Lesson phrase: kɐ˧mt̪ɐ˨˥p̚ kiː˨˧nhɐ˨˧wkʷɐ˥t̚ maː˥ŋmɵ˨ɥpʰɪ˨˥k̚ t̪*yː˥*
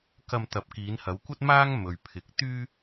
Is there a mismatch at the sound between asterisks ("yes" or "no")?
no